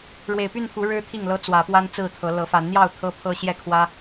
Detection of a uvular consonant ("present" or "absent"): absent